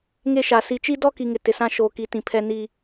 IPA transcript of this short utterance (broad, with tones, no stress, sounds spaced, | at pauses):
ŋ e˦ ʃ a˨ s i˨ t͡ʃ i˦ d ɔ˦ k i˨ ŋ ɪ˨ t ɪ˨ s ã˦ ʃ oː˨ k i˨˦ t ĩ˨ pʰ ɛ˦ n i˦